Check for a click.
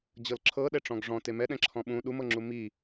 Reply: present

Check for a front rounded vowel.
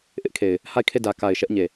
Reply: absent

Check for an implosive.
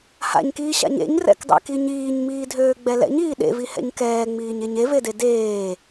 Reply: present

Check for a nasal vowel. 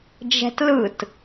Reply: absent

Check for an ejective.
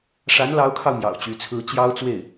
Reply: absent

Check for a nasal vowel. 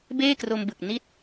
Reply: absent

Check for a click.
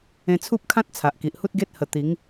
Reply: absent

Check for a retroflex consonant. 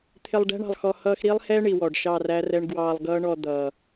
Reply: present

